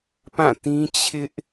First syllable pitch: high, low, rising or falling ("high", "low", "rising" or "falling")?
falling